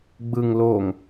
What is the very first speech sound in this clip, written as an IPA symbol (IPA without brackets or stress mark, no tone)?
ɡ͡b